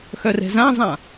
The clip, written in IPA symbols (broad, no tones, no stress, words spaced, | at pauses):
xœrɛ̤zãzˤã